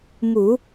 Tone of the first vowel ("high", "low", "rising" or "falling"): low